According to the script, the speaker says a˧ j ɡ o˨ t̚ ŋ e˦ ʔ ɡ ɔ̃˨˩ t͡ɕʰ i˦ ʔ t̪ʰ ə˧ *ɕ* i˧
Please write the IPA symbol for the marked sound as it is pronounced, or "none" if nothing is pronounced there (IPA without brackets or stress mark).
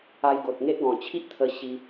ɕ